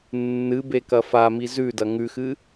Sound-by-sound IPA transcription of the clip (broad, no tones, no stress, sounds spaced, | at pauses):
nː ɨ b e k ɐ f a m i z ʉ d ɐ ŋ ʉ x ɨ